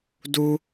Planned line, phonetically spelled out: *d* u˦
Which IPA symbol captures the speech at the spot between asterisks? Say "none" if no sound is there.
d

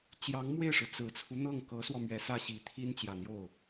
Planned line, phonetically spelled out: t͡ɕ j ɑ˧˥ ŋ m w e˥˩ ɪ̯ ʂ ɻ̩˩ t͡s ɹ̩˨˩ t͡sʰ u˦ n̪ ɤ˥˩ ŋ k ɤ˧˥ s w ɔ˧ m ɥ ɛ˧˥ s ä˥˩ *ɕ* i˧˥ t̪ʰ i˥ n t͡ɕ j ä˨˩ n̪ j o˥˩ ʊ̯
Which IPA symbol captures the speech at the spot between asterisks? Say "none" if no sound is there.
ɕ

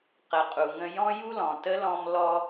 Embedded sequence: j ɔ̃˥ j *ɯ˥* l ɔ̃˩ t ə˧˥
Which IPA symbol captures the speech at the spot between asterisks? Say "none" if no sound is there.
u˥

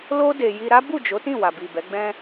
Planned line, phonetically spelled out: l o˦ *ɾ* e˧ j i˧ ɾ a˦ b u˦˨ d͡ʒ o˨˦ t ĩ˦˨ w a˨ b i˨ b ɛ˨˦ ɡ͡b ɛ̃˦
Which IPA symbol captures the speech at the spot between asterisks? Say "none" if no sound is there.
d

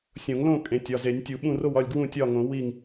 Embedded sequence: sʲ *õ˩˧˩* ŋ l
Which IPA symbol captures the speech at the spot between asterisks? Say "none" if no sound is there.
õ˨˩˦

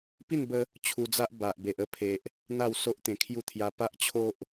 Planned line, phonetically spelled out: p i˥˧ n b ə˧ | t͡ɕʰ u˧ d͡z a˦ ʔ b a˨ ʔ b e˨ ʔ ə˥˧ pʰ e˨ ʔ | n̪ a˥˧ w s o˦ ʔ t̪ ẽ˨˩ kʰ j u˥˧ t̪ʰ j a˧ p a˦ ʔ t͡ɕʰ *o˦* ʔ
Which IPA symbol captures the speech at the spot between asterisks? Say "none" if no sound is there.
o˦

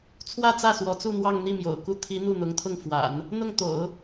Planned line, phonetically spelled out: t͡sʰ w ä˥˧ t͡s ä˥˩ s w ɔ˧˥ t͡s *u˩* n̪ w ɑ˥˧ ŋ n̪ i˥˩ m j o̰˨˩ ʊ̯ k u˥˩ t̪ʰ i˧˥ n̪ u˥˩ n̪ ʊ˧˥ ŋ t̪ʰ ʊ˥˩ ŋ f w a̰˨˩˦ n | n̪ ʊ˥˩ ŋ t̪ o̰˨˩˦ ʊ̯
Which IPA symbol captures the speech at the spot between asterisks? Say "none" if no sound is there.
u˥˧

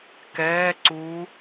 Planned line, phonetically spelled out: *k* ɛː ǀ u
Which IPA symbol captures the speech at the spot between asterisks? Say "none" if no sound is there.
k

